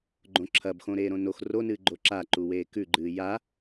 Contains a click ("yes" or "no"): yes